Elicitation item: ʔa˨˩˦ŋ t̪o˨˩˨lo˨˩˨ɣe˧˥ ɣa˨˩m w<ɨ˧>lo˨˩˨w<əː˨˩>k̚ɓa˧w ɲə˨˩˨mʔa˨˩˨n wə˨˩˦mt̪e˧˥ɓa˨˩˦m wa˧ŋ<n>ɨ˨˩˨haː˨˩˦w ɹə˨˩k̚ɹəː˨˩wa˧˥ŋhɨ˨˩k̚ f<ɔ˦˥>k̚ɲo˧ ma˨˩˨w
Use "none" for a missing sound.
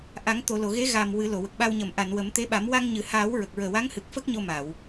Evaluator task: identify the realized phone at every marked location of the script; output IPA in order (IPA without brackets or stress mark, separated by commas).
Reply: ɨ˨˩˦, ə˨˩, ɲ, ə˦˥